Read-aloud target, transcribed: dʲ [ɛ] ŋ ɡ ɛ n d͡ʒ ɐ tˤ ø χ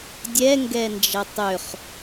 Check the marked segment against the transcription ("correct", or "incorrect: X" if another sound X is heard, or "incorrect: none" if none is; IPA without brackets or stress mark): correct